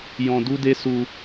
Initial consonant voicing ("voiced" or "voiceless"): voiced